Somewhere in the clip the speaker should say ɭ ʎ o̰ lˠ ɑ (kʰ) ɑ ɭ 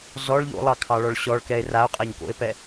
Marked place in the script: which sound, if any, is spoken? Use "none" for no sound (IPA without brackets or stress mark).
kʰ